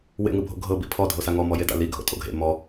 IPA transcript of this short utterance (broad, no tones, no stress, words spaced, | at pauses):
wḛŋɯbʱo̰ ɡʱɤbi pʰɔ dʱosaŋɔ mɔjeda̰li ɡʱo̰tʼo̰ɡʱḛ mɔ